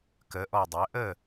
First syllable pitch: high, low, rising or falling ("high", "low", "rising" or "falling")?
rising